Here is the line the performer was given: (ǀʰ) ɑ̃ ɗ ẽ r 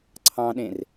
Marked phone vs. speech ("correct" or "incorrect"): correct